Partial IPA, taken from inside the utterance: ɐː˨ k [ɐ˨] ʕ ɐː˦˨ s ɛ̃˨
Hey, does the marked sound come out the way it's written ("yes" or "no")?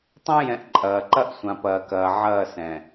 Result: no